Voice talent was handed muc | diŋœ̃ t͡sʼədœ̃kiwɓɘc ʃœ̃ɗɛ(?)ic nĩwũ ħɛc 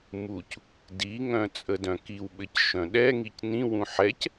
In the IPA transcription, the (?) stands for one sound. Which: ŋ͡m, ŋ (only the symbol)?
ŋ